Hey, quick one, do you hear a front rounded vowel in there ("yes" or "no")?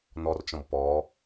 no